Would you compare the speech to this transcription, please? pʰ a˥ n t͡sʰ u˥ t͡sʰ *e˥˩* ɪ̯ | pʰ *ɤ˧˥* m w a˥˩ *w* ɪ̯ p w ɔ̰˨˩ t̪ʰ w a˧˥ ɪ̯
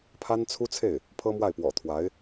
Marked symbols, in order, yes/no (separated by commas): yes, no, no